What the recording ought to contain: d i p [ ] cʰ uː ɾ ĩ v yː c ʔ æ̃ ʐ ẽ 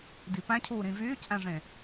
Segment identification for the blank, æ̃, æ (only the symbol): æ̃